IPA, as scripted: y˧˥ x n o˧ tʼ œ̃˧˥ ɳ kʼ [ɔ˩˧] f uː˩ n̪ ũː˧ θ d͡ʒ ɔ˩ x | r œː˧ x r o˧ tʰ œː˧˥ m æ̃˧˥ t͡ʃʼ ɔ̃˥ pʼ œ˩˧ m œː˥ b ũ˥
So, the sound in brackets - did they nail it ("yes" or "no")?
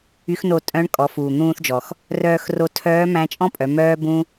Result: yes